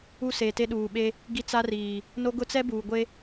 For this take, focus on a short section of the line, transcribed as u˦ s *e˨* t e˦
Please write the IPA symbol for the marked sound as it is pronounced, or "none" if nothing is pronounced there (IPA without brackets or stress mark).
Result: e˨